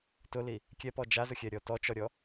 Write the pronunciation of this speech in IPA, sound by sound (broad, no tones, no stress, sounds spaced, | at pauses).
t ʊ l i | kʲ ɛ p ɔ d͡ʒ a z ʊ xʲ ɛ ɾʲ ɔ t ɔ t͡ʃ ɔ ɾʲ ɔ